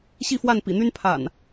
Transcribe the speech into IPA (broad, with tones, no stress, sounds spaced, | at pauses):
ɕ i˥˨ f w a˥˨ n p ḭ˨˩ n̪ y˦ n pʰ a̰˨˩ n